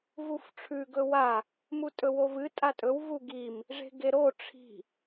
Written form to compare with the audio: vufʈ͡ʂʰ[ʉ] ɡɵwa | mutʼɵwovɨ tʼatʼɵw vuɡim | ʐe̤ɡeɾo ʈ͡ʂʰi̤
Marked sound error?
no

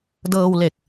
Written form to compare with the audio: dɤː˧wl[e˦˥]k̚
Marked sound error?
yes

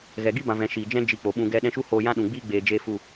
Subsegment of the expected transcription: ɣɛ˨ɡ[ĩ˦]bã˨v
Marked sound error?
yes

